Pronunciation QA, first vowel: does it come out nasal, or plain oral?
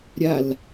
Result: oral